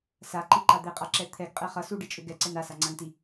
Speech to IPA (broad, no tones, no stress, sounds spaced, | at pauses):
s a ǃ i ǃ a d̪ e qʼ a ǁ ɛ t̪ʰ ɛ ɡ qʼ ɛ χ ʌ s u ɖ i t͡ʃʼ ʏ ɡ ɛ ǀ ɛ n a s a ŋ͡ǀ a ŋ t i